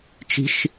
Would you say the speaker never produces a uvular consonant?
yes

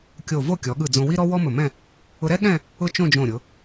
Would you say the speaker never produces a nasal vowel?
no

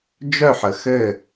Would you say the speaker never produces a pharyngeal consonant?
no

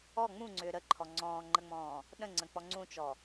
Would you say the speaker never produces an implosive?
no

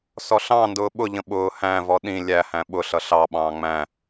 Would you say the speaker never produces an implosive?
no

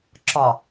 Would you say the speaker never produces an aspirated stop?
yes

